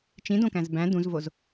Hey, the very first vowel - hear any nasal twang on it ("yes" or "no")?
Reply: yes